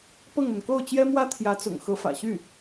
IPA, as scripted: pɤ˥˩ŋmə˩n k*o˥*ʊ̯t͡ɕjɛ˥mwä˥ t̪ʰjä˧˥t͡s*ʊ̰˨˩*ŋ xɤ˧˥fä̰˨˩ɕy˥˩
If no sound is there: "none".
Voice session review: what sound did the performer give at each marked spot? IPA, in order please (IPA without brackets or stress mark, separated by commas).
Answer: o˥˩, ʊ̰˨˩